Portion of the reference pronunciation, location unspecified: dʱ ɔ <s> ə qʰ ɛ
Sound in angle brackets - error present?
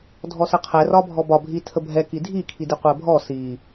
no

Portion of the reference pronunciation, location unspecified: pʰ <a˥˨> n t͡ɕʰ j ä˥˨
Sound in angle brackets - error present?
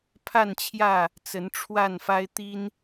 no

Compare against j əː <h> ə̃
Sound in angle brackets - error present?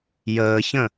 yes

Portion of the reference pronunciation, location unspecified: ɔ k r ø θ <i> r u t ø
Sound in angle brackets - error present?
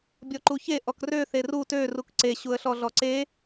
yes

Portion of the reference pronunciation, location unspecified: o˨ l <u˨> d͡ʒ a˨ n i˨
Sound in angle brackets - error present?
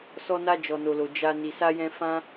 yes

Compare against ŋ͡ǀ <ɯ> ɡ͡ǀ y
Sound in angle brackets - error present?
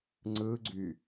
no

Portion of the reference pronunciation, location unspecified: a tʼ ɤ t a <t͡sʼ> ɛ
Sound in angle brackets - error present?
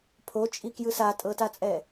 no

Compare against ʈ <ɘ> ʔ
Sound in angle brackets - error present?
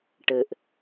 no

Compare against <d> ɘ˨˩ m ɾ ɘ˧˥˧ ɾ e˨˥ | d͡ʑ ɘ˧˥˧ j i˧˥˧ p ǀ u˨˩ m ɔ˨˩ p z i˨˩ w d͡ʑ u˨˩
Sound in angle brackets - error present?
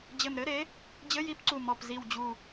yes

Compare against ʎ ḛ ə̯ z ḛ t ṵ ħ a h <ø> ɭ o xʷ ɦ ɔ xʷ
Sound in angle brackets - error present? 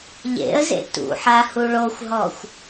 yes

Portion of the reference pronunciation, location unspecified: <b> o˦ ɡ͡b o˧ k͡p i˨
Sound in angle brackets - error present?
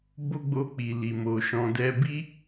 no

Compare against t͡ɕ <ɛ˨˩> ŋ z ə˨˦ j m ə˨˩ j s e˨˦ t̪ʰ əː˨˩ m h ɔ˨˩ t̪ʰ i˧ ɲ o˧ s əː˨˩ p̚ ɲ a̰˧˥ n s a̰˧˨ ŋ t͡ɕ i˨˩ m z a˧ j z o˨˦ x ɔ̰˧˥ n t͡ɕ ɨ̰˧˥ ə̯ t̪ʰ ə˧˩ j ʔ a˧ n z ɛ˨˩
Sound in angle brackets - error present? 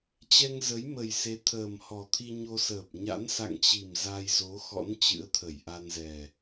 yes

